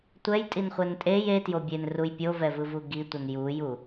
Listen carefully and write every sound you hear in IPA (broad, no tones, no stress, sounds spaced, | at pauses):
tʷ ɛ j tʼ i n χʷ ɛ n tʼ e j e t j o bʲ e n r u j pʲ o v ɛ v ɯ v u ɡ i tʷ ʌ n j u j u